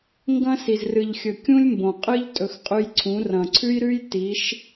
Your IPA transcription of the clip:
ŋ ɡ ɐ̃˦ s i˨ z r ɨ˨ ʎ xʲ ɵ˨ kʲ ũ˦ lʲ m b õ˨ qʼ ɨ˦ ʎ tʼ ɵ˨ x qʼ ʉ˦ j ǀʰ ũ˨˦ r ɐ̃˨ ǀʰ ʉ˦ j ɾ ʉ˦ j t i˨˦ ʃ

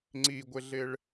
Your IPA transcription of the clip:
ŋ͡ǀ i ɡʷ ɪ ɮ ɪ ɭ

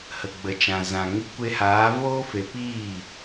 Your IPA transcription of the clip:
h ə˨ ɡ͡b ə˨ t͡ʃ ã˨ z ã˨ ŋ i˧ kʷ e˧ h aː˨˦ v oː˦ f e˧ p iː˦˨

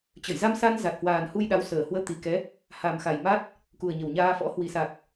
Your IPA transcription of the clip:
t͡ɕ ə˧˩ j z a˧ m s a˧ n z a˨˩ t̚ h w aː˨˩ n h u˧ j ɗ a˨˦ w s əː˨˩ h w əː˧ t̪ i˨˩ k ɛ˨˦ | h a˨˩ m x a˨˩ j m a˦˥ t̚ | k u˨˩ ə̯ ɲ ə˨˩ w ɲ aː˧ f ɔ̰˧˥ h w i˨˩ s a˨˩ k̚

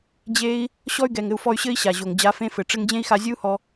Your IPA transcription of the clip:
d͡ʑ e˦ i̯ | ɕ ɔ˦ y̯ ɡ ɛ˨ ŋ ɘ˧ u̯ f ɔ˧ y̯ ɕ ɘ˦ i̯ ɕ a˨ ʑ o˨ ŋ d͡ʑ a˨˦ f ẽ˦ f ɘ˨ ʈ͡ʂ ɘ˦ ŋ d͡ʑ ẽ˦ i̯ x a˧ zʲ ɨ˦ u̯ h ɔ˧

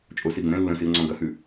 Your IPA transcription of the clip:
t͡ʃʼ o s i ɡ ə̃ ɾ ɛ̃ lː ə̃ s i ə̯ ŋ͡ǀ ɔ̃ ɡ ɐ h ʉ

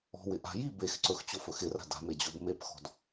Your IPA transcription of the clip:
ɔ̤ w ɪ ʔ a̤ j i b e x ǀ ɵ x t͡ɕ o f ɵ x ɪ r a̤ d a̤ m e d͡ʑ o b m e p x ɔ̤ d

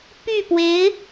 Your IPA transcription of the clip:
p y˥˩ p w e˧˥ ɪ̯

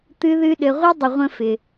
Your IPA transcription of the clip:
t̪ ɨ˧ ð ɨ˧ ɗ ɘ˨ ʁʷ e˦ dˤ ə˨ ʁʷ ə̃˧ f ɪ˨

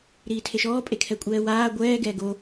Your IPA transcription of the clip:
ɾ iː tʰ e ʃ ɔː pʼ e kʰ ɛ kʷʼ ɛː w aː ɡʷ ɛː ɡ ɛː ɡ o

